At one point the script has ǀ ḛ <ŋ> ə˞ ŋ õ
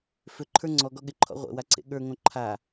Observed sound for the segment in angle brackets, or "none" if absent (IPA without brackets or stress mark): ɠ